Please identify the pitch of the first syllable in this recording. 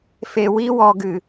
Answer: low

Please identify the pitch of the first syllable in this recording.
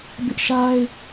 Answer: high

